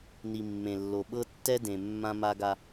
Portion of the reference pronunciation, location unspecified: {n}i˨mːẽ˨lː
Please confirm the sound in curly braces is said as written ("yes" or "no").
yes